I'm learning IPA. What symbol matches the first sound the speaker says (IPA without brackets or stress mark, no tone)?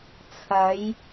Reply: t͡sʰ